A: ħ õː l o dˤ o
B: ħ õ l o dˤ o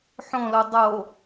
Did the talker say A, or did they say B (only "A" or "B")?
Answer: B